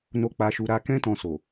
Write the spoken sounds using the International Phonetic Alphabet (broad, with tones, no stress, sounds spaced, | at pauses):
n o˧ k͡p a˧ ʃ u˧ ɾ a˧ k ɛ̃˦ t ɔ̃˧ s o˨